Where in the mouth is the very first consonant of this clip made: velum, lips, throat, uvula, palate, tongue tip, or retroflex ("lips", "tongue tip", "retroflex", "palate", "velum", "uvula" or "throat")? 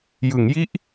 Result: palate